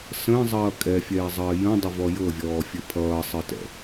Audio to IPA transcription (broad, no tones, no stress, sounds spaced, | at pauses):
s ə̃ː zˤ ʌː kʼ ɛ fʲ ɛː zˤ ʌː j ə̃ dˤ ɘ v ɔ j ɤ vʲ ɔː fʲ ɘ pʰ ʌː sˤ ɘ t ɛ̰